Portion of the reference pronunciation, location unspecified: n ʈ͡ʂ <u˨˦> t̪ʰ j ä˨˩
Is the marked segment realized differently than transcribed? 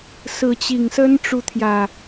no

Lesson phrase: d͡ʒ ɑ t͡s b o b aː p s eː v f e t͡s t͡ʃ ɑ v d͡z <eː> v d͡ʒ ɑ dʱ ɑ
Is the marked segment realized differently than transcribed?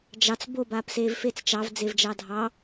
yes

